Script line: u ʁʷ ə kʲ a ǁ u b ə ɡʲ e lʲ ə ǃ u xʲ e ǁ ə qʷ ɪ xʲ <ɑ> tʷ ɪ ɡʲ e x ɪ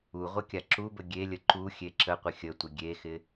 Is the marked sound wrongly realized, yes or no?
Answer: yes